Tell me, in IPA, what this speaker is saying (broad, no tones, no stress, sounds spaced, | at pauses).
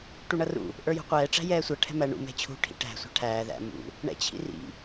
ʈ u ɳ ʌ r ṵ | ʔ ə˞ j ṳ qʷ ɛː ʈ͡ʂ æ̤ j ɛː sʷ ʌ ʈʰ ɛ̤ m æ ɳ ṵ m ɛ̤ t͡ɕʰ ṳ ʈʰ ḭ ʈ æ̤ sʷ æ̤ ʈʰ æː ð æ̰ m ṵ | ɳ ɛ̰ t͡ɕʰ ḭ r ḭ